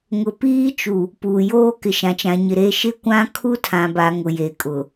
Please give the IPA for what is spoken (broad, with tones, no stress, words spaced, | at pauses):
ŋʊ˨piː˦ t͡ʃu˨ | puː˨joː˦ kɪ˨ʃã˨t͡ʃã˨ɲɪ˨ ɾe˦ ʃɪ˦˨ kʷã˦ kʰu˦tʰã˨ba˨ ŋʊ˨je˨kʼʊ˨